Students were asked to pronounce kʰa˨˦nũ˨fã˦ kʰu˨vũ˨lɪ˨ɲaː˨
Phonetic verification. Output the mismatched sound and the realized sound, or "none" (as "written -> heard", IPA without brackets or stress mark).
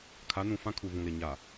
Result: none